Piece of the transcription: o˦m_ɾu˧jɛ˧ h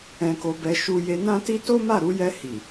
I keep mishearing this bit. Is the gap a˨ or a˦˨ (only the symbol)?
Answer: a˦˨